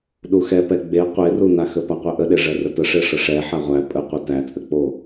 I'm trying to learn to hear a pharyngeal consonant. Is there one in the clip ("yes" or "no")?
yes